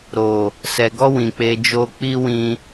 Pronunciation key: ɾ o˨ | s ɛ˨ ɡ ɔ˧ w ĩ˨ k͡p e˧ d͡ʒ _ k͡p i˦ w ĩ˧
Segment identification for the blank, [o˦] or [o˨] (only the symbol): o˦